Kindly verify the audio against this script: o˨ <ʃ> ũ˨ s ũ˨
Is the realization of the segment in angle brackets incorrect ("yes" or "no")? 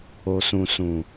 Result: yes